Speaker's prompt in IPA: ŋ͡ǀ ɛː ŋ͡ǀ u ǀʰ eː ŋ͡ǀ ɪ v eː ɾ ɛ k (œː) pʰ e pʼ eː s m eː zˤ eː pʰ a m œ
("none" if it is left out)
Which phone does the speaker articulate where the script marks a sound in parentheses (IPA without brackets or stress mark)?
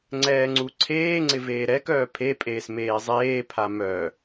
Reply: œː